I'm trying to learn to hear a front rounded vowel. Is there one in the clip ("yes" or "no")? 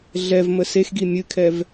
no